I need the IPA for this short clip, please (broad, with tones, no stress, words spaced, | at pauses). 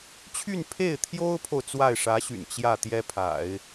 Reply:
t͡ɕʰy˥˧npʰe˥˩ɪ̯t̪ʰjo˥ʊ̯pʰo˨ʊ̯ t͡swa˥˩ɪ̯ʂä˧˥ɕy̰˨˩n t͡ɕjä˥˩ t̪jɛ˥pʰa̰˨˩˦ɪ̯